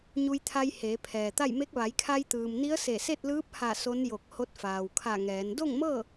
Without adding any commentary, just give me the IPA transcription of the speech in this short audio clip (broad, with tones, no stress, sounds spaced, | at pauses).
ɲ u˧ j t̪ʰ a˧ j h eː˩˧ pʰ ɛː˩ t̪ a˥˨ j m e˧˥ k̚ ʋ a˩˧ j kʰ a˧ j t̪ ɯː˩ m n i˧˥ ə̯ s e˧˩ s e˥˨ t̚ l ɯː˧˥ p̚ h a˧˩ s o˧˥ n j o˧˩ k̚ h o˧˥ t̚ f aː˩ w kʰ a˧˩ ŋ ɛː˩˧ n d o˥˨ ŋ m ɤː˥˨